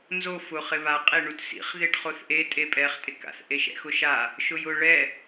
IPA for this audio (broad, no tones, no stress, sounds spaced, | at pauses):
n z o f ʊ χ ɪ β a qʼ e ɳ u t s ḭ χ ð e ʈ χ o θ ʔ e tʼ e pʼ ɛ χ tʼ ɪ k a̰ θ ʔ e ʃ ɛ̰ x ʊ ʃ a | ʃ ʊ j ʊ ɭ ɛ